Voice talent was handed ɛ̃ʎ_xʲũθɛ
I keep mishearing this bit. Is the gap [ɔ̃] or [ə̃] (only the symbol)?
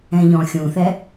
ɔ̃